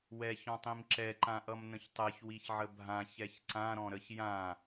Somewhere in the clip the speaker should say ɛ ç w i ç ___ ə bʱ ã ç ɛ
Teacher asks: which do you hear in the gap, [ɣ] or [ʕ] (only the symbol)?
ʕ